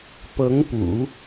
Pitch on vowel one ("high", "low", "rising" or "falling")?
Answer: rising